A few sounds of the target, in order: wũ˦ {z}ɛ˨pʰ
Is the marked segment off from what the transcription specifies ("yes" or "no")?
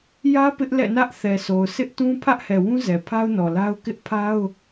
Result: no